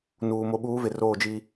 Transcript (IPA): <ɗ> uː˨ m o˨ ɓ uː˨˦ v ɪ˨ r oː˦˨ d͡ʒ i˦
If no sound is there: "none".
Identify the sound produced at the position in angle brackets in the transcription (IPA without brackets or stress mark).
n